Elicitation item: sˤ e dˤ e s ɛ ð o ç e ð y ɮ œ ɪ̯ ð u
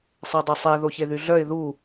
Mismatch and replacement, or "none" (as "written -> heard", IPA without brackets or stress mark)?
s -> sˤ